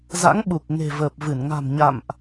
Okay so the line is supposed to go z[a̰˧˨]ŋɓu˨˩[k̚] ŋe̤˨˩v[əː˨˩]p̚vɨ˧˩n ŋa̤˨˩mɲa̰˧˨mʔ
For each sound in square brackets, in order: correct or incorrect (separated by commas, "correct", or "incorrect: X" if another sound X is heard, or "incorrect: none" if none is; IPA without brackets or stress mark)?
incorrect: a̰˧˥, correct, correct